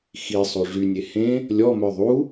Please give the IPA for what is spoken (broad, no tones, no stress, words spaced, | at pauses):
xi sˤoʐynʲe hẽ | lʲɔmœ ðˤu